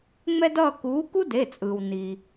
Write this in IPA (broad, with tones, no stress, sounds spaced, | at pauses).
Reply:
ŋ͡m ɛ˥ d ʌː˥˧ k uː˨˥ k u˥ d e˩˧˩ t͡sʼ ɯː˩ w n i˩